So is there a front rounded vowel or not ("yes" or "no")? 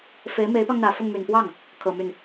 yes